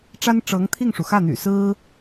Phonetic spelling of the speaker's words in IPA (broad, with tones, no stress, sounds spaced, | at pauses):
ʈ͡ʂ a˥ n ʈ͡ʂ ɤ˧˥ ŋ t̪ʰ i˥˩ ŋ ʂ u˩ x ä˥˩ n̪ y̰˨˩ s ɹ̩˥